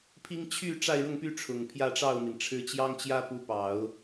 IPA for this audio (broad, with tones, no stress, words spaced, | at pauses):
pʰi˥ŋ t͡ɕʰy˥˧ ʈ͡ʂa˥˧ɪ̯ɻʊ˥˧ŋpy˥˩ ʈ͡ʂʰʊ˨˩ŋpʰjä˥˧ʈ͡ʂɑ˥˩ʊ̯mi˩n ʈ͡ʂʰɻ̩˧˥t͡ɕjɑ˥ŋt͡ɕjä˥pu˧˥ pɑ˨˩˦ʊ̯